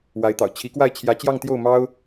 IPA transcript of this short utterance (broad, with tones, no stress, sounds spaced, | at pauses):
w a˧˥ ɪ̯ t̪ ɑ̰˨˩ ʊ̯ t͡ɕʰ i˧˥ k w a˥˩ ɪ̯ t͡ɕʰ j ä˧˥ t͡ɕ j ɑ˥˧ ŋ t̪ j o˥˩ ʊ̯ m ɑ˥ ʊ̯